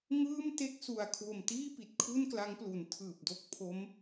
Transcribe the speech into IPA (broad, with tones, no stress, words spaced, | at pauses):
ŋɯː˥˩mte˥˩k̚ su˨˩a̯kʰwo˨˩mtiː˥˩ pi˨˩t̚kʰu˥˩nkla˦˥ŋplu˩˦n tʰɯː˨˩p̚do˦˥k̚ pʰo˦˥m